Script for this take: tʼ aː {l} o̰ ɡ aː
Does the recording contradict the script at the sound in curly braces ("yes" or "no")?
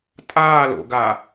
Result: no